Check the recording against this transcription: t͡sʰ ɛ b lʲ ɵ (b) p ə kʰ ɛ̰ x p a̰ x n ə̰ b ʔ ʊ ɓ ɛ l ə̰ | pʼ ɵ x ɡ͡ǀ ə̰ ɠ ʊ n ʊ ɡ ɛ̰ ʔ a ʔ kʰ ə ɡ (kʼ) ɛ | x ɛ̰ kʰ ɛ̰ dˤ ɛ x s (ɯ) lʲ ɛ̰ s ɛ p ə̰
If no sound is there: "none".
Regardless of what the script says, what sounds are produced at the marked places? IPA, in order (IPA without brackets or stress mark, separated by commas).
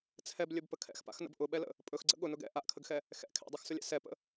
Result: b, x, ʊ